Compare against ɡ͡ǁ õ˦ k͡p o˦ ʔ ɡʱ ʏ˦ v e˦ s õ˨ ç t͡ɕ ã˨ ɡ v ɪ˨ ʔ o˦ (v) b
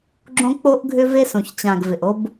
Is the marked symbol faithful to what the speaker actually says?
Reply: no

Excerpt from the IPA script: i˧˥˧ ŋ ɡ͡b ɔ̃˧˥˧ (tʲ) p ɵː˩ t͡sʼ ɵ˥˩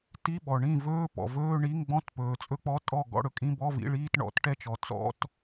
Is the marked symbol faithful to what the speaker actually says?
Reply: no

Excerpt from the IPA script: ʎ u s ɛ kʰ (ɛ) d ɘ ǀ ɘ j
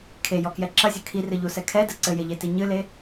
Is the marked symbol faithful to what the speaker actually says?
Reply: yes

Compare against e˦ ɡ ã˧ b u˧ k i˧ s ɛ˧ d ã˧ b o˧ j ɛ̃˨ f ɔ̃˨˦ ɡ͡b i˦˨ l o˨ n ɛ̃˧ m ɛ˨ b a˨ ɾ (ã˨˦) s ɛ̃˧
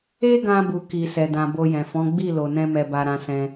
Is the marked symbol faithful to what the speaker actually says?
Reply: yes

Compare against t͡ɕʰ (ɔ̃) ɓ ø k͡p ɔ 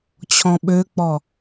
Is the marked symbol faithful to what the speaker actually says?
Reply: yes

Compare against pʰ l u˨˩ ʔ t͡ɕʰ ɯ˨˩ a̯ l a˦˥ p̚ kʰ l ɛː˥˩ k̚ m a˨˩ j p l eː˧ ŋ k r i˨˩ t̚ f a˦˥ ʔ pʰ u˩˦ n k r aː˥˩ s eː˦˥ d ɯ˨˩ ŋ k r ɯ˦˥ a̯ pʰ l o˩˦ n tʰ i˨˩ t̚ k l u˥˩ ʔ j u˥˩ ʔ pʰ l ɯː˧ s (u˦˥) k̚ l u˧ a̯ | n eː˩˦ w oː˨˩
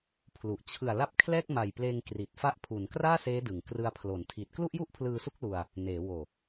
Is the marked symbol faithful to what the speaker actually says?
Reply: yes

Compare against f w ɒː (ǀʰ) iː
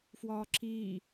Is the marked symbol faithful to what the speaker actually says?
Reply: no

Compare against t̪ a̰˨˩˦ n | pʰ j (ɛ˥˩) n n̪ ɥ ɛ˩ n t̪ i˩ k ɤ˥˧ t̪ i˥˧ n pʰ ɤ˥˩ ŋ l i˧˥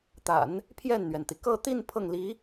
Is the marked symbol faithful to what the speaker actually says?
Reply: yes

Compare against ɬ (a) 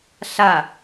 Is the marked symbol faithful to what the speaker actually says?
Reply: yes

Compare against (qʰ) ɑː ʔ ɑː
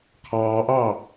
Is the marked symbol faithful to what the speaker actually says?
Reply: yes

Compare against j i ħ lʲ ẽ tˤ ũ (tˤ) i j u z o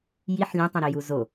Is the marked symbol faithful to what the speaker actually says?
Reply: no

